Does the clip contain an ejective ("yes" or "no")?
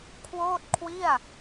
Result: no